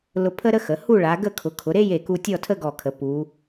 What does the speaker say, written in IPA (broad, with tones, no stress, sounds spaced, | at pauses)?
l ʊ˧ pʰ ə˥ ɾ ə˥ x ə˩˧ h u˥˧ ɭ a˩˧ ɡ ə˥˧ kʰ ʊ˩˧ kʰ ʊ˩˧ ɾ e˥ j e˧˩ k u˧ tʲ ɔ˥˧ tʰ ə˥ ɡ ɔ˧˩ kʰ ə˩˧ p u˩˧